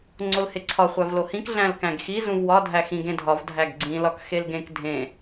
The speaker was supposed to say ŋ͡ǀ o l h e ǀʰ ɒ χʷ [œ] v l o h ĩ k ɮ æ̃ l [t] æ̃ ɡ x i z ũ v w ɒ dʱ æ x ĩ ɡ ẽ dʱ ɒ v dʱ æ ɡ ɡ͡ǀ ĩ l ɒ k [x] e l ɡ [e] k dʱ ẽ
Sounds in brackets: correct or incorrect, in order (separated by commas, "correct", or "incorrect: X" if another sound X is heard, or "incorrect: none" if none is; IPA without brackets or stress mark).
incorrect: æ, incorrect: k, correct, incorrect: ẽ